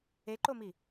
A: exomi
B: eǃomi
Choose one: B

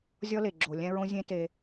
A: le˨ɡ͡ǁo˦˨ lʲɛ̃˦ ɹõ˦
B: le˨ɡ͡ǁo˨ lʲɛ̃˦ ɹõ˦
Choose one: B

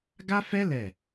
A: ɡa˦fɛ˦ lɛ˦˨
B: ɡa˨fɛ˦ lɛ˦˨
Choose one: A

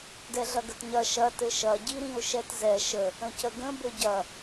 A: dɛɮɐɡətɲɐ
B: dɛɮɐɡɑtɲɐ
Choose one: A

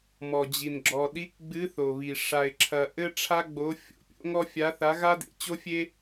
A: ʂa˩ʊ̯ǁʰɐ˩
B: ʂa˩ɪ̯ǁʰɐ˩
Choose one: B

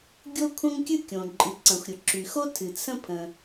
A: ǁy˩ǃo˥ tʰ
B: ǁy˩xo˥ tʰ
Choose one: B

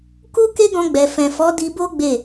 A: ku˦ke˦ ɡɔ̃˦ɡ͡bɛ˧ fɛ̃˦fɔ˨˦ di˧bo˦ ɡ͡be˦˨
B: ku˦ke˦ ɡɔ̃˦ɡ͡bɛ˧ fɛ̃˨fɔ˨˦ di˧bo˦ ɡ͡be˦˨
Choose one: B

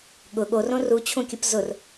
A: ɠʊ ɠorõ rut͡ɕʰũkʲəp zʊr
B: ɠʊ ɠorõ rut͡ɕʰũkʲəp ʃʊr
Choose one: A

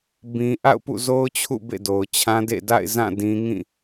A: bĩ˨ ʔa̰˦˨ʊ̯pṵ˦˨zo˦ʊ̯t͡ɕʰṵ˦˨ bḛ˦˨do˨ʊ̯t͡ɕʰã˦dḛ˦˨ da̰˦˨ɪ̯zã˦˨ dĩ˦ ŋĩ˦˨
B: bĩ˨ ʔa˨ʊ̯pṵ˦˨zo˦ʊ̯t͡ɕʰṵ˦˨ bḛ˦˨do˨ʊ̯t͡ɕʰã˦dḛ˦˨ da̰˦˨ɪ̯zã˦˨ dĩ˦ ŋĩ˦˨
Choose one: A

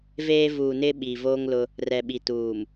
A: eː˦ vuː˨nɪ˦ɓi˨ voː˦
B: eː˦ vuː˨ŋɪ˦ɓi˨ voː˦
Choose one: A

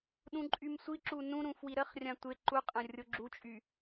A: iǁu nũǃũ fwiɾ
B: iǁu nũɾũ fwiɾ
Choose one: B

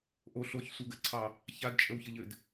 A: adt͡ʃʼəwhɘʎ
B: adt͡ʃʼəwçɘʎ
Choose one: B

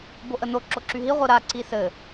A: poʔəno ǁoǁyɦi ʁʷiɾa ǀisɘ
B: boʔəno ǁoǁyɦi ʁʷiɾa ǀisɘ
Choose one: B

